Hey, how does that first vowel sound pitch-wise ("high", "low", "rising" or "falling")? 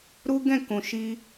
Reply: high